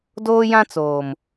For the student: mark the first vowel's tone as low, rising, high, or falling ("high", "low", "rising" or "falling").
high